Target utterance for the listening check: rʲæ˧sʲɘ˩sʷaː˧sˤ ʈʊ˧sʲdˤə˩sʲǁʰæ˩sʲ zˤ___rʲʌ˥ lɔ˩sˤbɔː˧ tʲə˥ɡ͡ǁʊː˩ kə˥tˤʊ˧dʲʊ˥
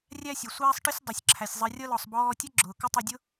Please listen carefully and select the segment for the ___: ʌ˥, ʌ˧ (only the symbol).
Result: ʌ˧